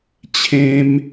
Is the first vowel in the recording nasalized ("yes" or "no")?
yes